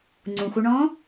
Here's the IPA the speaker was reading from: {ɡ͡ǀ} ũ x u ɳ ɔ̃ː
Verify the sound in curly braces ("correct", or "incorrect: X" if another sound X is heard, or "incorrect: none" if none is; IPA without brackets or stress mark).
incorrect: ŋ͡ǀ